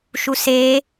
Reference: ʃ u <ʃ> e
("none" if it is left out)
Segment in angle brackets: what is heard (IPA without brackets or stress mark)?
s